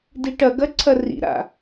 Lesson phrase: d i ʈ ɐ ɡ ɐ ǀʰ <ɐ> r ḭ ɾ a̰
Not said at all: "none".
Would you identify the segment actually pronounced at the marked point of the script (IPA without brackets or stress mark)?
ɐ